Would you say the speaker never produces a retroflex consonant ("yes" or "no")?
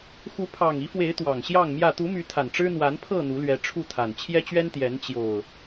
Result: no